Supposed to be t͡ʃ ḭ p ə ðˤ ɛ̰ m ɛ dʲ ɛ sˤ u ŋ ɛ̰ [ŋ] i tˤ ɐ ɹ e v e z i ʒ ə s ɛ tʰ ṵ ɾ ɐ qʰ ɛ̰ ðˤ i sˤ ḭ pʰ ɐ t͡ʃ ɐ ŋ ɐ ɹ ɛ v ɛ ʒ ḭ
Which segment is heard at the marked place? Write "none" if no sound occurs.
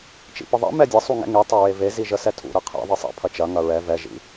ŋ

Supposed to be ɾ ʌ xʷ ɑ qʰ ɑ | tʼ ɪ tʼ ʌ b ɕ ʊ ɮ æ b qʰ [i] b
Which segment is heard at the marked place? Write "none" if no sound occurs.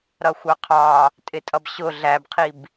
i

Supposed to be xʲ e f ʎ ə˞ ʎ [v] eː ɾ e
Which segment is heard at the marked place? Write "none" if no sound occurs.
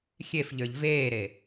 v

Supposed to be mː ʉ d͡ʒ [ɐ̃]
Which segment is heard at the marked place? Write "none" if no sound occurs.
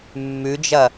ɐ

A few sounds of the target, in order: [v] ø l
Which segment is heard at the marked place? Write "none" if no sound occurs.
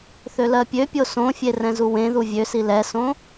θ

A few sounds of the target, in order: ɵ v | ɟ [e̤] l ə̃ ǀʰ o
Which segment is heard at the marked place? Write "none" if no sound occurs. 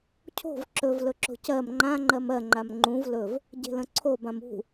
e̤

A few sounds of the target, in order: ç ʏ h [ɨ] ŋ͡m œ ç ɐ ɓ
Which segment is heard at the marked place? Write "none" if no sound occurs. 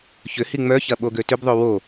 i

